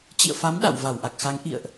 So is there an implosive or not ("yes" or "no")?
yes